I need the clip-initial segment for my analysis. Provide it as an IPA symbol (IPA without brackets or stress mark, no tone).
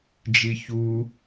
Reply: d͡ʒ